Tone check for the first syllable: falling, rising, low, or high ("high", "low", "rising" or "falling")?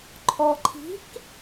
low